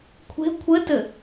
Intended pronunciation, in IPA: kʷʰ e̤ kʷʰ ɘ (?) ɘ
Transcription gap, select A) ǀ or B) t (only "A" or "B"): B